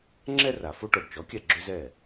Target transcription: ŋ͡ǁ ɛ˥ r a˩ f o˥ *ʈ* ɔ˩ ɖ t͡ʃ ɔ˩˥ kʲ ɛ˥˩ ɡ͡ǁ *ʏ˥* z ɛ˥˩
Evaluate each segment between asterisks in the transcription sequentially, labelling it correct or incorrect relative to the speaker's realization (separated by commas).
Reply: correct, correct